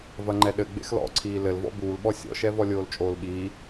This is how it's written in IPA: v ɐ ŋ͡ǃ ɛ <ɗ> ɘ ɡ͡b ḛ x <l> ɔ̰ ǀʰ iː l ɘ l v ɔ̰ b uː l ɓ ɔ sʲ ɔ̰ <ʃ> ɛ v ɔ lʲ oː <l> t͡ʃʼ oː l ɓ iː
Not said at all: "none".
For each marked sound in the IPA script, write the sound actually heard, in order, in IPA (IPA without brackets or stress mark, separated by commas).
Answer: ɗ, l, ʃ, l